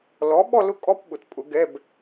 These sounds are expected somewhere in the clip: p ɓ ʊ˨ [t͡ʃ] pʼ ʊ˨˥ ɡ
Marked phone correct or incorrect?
incorrect